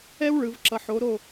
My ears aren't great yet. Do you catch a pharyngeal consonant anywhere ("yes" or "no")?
yes